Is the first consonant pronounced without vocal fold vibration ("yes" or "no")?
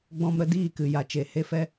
no